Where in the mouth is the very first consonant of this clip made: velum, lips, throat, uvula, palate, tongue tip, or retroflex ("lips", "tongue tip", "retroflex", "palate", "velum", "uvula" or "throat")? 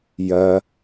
palate